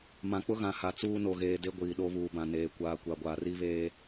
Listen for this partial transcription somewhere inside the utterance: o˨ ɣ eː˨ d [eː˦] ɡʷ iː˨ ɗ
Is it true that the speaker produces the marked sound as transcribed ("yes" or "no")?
no